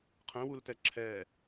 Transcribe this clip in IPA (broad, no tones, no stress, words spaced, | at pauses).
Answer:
qʰɛ̃wultɛ ǁʰɛ